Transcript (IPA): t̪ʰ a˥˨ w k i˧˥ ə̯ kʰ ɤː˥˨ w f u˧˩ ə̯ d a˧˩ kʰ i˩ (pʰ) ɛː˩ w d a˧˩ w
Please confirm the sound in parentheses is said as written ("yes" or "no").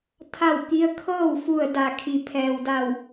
yes